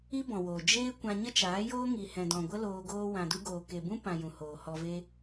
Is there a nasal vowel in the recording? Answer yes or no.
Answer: yes